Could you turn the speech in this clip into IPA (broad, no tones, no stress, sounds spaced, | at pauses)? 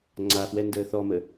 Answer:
ŋ͡ǀ a f w ɛ n d əː θ ɔ m ə